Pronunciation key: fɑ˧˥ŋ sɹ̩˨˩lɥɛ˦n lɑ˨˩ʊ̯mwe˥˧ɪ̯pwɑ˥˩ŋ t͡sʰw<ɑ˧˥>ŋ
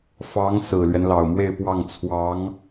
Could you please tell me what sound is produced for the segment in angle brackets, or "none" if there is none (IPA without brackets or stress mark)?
ɑ˧˥